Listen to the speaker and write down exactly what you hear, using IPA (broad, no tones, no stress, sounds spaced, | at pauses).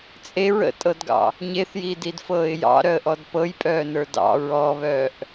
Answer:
t͡sʼ e ɹ ə̰ tʼ ɤ d ɡ ɑ̰ | ɲ e θ j iː d i d f ɤː ɪ̯ j ɑ̰ ɾ œ ə̯ ʔ ɔ d p ɤ j pʼ œː n ə˞ d ɑ̰ ɹ ɔ β œː ʔ